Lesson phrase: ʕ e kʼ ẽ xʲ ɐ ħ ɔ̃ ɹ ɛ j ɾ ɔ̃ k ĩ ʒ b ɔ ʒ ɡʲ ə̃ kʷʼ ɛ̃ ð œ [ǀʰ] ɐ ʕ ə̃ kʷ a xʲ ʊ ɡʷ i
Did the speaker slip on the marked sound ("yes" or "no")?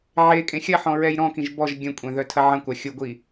yes